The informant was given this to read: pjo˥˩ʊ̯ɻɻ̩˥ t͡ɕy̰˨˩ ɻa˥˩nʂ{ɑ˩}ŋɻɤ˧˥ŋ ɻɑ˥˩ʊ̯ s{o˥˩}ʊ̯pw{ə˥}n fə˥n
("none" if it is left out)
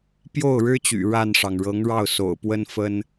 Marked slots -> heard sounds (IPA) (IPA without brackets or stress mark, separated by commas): ɑ˩, o̰˨˩, ə˥